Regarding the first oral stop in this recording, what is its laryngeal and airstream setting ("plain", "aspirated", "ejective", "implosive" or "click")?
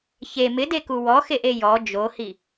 plain